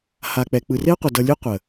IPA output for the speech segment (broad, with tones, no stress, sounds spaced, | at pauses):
h a˨ k͡p ɛ˨ k͡p ɯ˨ r e˦ ə̯ qʷ ʌ˨ d ʌ˧ lʲ ɯ˦ qʷ ə˨